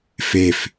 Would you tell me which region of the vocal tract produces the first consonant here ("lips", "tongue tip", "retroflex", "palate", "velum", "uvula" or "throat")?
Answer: lips